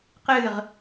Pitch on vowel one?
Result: falling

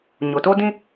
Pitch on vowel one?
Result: low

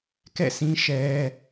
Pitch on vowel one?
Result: falling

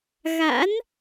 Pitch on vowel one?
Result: rising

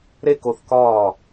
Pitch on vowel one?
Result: high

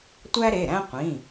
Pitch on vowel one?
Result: high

